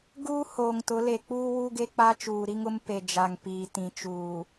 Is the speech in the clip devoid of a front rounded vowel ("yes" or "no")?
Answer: yes